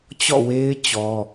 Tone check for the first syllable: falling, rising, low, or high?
falling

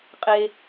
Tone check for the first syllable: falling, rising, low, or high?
high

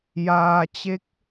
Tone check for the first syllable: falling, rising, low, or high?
low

